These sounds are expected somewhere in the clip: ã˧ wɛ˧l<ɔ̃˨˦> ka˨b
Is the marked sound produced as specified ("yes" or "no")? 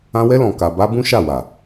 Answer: no